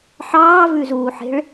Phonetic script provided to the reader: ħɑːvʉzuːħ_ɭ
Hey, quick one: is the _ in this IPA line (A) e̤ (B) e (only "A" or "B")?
A